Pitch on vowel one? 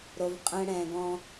low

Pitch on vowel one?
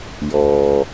low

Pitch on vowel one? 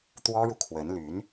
high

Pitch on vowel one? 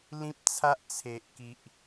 high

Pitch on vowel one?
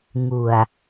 low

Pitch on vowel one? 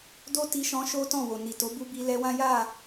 high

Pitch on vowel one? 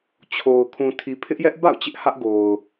low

